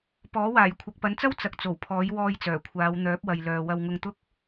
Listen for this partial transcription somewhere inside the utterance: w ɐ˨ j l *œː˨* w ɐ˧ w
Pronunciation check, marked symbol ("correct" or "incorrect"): correct